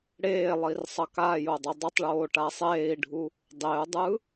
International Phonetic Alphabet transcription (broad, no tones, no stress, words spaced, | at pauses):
ɽeːlˠir sˤʌkajo dˤodˤʌtˤɭoː ʈasˤeːi̯ɖʱu | dˤeu̯dˤɯ